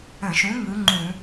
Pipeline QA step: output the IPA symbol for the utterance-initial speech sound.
ə̃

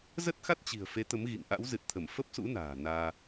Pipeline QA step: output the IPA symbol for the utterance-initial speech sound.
z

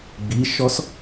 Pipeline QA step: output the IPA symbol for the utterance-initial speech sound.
ɡ͡b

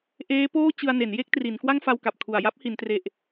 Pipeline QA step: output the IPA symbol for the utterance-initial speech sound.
ʔ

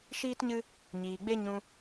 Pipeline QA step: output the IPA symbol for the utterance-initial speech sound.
ʃ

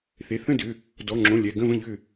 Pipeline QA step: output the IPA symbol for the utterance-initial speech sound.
θ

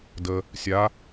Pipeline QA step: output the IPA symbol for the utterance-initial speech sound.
d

